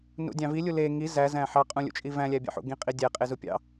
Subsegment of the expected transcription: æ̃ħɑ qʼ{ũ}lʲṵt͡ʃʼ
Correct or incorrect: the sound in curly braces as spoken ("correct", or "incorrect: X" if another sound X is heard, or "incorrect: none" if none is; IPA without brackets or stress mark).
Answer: correct